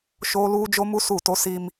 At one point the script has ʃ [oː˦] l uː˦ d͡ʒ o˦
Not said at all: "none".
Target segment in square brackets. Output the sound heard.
oː˦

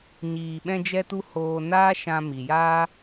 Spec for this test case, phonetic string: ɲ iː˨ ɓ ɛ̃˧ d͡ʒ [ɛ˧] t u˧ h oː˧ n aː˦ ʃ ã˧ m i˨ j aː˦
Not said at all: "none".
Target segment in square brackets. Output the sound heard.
ɛ˧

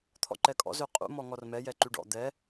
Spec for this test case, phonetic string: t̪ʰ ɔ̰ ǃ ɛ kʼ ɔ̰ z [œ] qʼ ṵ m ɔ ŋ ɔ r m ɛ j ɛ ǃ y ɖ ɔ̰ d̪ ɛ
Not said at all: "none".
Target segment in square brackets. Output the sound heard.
ø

